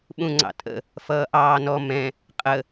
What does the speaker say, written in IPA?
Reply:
ɓ ũ ŋ͡ǀ ɑ̰ tʼ ə̰ | f ʌː ʔ ɑː n ɔ m ɛ̃ | qʼ ə

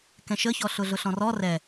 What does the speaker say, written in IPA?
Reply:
k ɛ̃ ʃ ə ç ɔ ɬ ʊ ɮ ʊ ɬ ɔ̃ r ɔ r ɛ

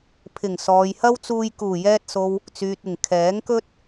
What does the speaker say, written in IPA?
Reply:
pʰ ɪ˨˩ ŋ s ɔː˨ j h ɐ˥ w t͡s uː˧ j k uː˨˩ j ɛː˧ t̚ s o˨ w | t͡s yː˨ t̚ ɪ˨˩ ŋ kʰ ɛː˨˥ ŋ k ɵ˥ t̚

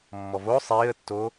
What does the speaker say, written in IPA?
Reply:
mː ɔ v o sˤ i ə̯ tː o

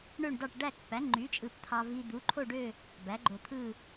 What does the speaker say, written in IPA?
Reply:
ɳ ø˥˧ ɳ d ɑ˥˧ ʈ ɖ æ˥˧ k p æ˨˥ ŋ͡ǃ y˨˥ t͡ʃʼ ɯ˧ p t̪ʰ ɑ˧ v i˧ d̪ u˨˥ ǃʰ o˥˧ ɖ ø˥˧ | b æ˨˥ ɡ͡ǃ o˧ t̪ʰ ɯ˥˧

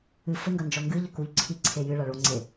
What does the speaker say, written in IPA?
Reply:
ɨ f ɘ ŋ ɡ ɐ n d͡ʒ ɔ ŋ ɡ ɨ ʎ ɘ k u ʎ ǀʰ i ǀʰ e j ɨ ɭ a ɭ o ŋ͡ǀ e

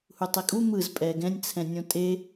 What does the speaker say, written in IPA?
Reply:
h u tˤ e kʼ u m ɯ z pʼ ɛ ɡ ɛ̃ nʲ t͡sʰ ɛ̃ nʲ õ tʼ e

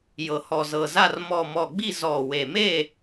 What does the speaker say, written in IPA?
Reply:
j ɤ˨˩ h ɔ˨˩ z ɤ˨˩ z a˦˨ r m ɔ˨˩ m ɔ˨˩ ɡ͡b i˦˨ z ɔ˨˩ w e˨˩ m e˦˨

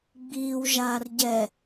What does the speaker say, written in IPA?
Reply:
ɡ͡b iː w ʒ aː r ɟ ɛ

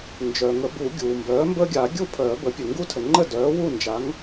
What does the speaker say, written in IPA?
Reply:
n d͡ʒ œ˩ ŋ ə˨˩˦ b u˨˩˦ ɡʲ uː˩ m b œː˩˥ m b əː˦ ɡʲ a˨˩˦ ɡʲ u˥˩ pʰ œː˨˩˦ b ə˩˥ pʲ ə˩ ŋ ɡ u˦ tʰ ə˩ ŋ͡ǃ ə˥˩ d œː˩˥ w u˥˩ n d͡ʒ a˩˥ ŋ

